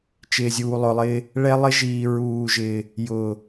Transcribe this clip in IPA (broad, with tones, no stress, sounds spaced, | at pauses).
t͡ʃ ɪː˨ zʲ uː˨ lˠ ʊ˨ lˠ ɪː˦ | ɭ ɛ˦ lˠ ɪ˦ ʒ iː˨ ɹ uː˨ ʒ ɪː˨ | j ʊː˨